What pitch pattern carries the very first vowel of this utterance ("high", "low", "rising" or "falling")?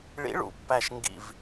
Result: rising